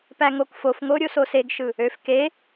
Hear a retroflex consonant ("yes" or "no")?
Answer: no